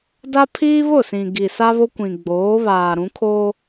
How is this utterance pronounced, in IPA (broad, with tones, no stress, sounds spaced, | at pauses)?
d a˦ pʰ iː˦ β ʊ˦˨ s ĩ˨ ɡ i˨ s a˦ β o˦ kʷ ĩ˨ ɡ͡b oː˨˦ β aː˨ ɾ ũ˨˦ kʰ oː˦